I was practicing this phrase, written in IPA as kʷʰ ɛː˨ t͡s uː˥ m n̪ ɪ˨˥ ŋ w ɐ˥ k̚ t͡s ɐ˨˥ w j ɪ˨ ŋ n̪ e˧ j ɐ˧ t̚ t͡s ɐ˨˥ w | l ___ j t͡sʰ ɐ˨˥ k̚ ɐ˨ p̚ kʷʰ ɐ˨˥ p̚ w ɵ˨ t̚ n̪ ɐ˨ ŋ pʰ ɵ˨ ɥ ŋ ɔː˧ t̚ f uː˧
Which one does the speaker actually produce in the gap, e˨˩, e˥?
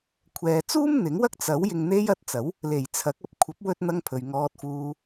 e˨˩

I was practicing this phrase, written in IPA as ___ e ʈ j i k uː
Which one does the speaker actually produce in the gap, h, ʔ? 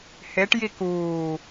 h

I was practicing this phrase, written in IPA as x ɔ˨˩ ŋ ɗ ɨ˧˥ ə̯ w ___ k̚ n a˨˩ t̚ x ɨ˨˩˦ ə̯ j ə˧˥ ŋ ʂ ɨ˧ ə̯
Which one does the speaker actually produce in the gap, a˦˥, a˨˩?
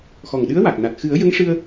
a˨˩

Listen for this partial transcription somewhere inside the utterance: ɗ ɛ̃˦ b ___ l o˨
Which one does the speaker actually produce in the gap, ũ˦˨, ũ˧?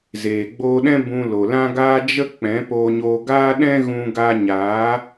ũ˧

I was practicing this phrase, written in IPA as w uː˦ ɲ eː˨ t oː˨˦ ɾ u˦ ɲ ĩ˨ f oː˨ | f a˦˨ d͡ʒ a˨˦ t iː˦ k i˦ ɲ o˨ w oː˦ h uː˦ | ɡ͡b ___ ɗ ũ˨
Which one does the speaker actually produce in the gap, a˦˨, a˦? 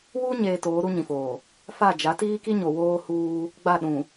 a˦˨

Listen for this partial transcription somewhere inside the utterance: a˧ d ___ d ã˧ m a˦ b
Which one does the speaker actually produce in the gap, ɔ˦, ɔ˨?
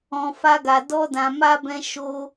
ɔ˦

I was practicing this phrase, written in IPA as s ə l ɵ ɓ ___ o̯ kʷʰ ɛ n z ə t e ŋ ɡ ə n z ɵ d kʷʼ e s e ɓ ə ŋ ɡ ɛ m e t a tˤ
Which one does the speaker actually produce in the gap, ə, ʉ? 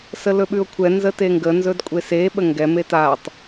ʉ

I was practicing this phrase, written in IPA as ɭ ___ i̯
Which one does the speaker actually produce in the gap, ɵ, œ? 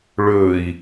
ɵ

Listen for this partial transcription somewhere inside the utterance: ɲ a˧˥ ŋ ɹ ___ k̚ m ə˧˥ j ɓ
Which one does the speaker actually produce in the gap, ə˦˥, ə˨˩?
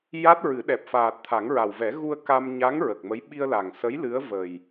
ə˨˩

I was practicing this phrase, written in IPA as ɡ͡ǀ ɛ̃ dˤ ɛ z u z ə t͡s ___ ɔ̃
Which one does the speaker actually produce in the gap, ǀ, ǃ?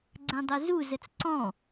ǀ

